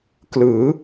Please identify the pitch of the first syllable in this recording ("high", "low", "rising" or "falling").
rising